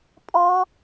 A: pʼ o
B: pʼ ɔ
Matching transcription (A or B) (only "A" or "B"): B